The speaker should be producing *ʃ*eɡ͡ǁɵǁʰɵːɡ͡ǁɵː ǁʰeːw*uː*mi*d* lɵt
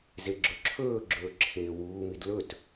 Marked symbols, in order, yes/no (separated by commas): no, yes, yes